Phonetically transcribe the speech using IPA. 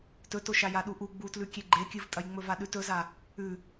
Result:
t ɵ t o ʃ a j a ɗ u ʔ u ɡ͡b u t l ʉ kʲ e ɡ͡ǃ e kʲ ɨ v tʼ ɐ j ŋ͡m ɵ v a ɗ ʉ t ɵ z a | ʉ

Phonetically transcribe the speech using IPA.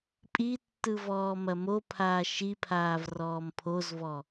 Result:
pʼ i tː ɯ v ɔː m ɐ m o pʰ aː ʃ i pʰ aː v r ɔː m pʰ o z v ɔ

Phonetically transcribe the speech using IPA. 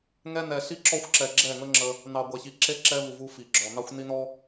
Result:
ŋ ɛ˧ n ɛ˨ ɬ i˦ ǁ ɔ˦ xʷ ǁ ɛ˨ ɡ͡ǁ ɛ˦˨ ŋ ə˦ ŋ͡ǁ ə˧ | n ɑ˨ ɡʷ ɛ˨ ç i˨ ǁ e˦ ǁ ɛ˦ v u˨ v u˧ f i˨ ɡ͡ǁ ɔ˨ n ɑ˦ xʷ n i˦ n ɔ˦

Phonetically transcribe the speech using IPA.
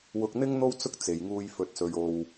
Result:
w ʊ˧ k̚ n̪ ɪ˥ ŋ n̪ o˥ w t͡s ʊ˥ k̚ t͡s e˨ j ŋ uː˧ j f ɵ˨ t̚ s ɵ˨ ɥ o˨ w

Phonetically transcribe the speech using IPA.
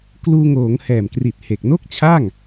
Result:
k l uː˧ ŋ oː˩˦ ŋ h ɛː˨˩ m k r i˨˩ t̚ h e˨˩ k̚ n o˥˩ k̚ t͡ɕʰ a˥˩ ŋ

